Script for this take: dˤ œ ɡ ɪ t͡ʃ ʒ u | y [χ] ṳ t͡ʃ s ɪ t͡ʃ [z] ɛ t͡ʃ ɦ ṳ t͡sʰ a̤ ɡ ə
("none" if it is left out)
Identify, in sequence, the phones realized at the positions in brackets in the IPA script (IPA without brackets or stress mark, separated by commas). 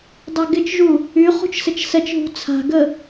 χ, s